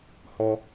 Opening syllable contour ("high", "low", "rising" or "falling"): low